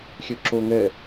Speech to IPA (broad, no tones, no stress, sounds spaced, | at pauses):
xʲ ø ǁ o ŋ ɛ